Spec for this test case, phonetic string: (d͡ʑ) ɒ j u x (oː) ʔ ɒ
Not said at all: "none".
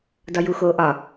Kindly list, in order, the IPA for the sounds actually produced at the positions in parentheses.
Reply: d, oː

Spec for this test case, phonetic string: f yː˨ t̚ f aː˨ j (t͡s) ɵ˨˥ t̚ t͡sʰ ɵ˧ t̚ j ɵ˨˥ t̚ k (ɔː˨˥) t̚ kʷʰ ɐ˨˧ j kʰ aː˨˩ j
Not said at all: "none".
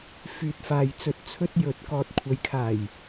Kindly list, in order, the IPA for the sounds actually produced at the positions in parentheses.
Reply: t͡s, ɔː˨

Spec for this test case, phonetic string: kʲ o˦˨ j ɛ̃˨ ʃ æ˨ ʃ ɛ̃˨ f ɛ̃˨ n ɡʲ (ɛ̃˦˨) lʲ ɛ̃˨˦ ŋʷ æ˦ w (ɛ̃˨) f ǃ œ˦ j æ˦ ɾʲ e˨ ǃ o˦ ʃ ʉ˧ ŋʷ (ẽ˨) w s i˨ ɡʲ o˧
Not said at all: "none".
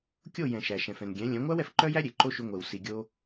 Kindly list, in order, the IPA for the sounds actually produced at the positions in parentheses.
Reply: ɛ̃˨˦, ɛ˨, e˨

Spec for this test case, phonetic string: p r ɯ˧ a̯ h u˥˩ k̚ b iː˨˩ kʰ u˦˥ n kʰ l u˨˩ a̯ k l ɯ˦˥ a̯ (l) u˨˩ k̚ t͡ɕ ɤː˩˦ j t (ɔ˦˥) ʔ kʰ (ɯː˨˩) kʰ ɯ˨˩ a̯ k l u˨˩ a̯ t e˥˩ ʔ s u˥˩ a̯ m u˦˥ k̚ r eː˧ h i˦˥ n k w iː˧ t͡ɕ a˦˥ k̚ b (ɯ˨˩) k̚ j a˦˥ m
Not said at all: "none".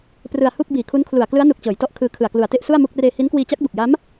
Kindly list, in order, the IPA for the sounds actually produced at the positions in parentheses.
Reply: n, ɔ˦˥, ɯː˧, u˨˩

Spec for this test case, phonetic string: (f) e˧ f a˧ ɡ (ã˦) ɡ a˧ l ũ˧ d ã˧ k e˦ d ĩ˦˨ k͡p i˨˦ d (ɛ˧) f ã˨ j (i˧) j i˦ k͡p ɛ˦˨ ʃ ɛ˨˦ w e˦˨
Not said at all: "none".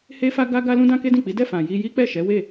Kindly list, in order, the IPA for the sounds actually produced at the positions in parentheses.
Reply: h, a˦, ɛ˦˨, i˧

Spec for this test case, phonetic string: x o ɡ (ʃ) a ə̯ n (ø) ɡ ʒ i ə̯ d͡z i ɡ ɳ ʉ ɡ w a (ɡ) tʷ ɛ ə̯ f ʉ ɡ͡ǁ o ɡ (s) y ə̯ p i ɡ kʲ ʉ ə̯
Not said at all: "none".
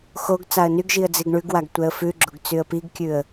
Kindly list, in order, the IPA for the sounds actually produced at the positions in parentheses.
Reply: t͡s, y, ɡ, t͡s

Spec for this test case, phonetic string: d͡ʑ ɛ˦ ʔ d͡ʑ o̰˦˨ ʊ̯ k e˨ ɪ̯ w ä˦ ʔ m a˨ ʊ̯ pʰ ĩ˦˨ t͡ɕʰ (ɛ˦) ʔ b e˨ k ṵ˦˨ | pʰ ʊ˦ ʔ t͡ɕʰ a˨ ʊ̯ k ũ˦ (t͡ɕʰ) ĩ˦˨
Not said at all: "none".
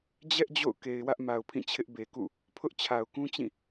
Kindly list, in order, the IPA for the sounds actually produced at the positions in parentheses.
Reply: ɪ˦, t͡ɕ

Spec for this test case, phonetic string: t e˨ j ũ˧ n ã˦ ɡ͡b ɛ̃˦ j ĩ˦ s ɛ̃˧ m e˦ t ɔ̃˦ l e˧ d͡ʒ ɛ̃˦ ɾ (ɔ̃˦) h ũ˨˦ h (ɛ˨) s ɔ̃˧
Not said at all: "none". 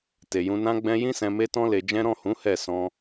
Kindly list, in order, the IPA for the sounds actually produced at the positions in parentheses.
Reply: ɔ̃˦˨, ɛ˦˨

